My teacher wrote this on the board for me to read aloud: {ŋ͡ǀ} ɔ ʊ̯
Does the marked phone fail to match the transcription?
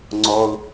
no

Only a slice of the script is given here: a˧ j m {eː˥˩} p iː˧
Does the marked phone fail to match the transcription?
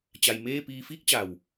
no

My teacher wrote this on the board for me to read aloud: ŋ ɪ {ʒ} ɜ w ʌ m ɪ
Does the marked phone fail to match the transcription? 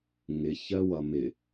yes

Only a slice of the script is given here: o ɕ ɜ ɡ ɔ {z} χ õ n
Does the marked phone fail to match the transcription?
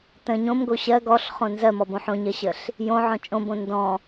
yes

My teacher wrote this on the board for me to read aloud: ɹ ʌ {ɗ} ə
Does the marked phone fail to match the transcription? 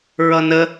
yes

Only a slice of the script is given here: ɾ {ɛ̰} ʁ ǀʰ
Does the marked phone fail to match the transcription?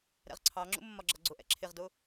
no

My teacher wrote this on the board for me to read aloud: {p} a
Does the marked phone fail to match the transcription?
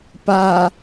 no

